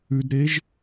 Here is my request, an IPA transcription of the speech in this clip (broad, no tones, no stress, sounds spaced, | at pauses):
ʉ d ɾ e ʒ